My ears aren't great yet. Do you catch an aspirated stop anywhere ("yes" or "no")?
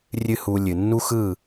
no